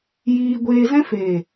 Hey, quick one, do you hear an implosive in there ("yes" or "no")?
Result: no